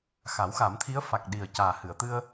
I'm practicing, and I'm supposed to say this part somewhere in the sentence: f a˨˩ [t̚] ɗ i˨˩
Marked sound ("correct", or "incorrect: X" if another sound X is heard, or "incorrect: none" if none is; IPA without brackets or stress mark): incorrect: k̚